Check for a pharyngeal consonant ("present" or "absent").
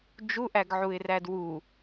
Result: present